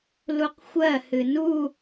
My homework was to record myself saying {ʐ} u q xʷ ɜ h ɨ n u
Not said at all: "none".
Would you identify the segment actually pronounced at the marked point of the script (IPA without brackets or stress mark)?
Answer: l